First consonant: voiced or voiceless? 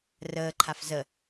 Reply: voiced